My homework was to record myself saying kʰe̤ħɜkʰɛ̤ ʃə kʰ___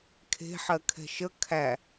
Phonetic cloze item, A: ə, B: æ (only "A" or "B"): B